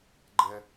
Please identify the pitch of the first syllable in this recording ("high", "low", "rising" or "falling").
high